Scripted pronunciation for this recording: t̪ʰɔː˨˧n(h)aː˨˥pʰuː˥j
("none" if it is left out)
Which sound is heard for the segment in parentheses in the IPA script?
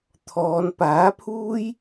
p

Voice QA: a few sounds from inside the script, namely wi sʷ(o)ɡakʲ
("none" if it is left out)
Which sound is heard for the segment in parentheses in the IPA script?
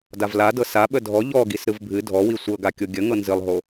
ɤ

